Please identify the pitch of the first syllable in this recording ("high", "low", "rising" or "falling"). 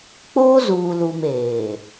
high